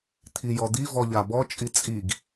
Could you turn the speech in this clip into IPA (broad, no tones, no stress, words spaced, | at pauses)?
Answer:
t̪ʰijɔd̪i vɔʎabɔ t͡ʃʼit͡sʼiɡ